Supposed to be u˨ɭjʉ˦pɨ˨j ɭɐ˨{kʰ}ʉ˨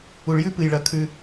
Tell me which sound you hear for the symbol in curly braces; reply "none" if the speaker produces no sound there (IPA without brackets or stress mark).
kʰ